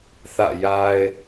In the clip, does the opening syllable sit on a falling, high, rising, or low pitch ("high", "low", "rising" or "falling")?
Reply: falling